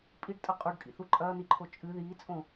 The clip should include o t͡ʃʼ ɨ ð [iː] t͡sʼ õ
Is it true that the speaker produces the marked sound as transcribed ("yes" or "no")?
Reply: yes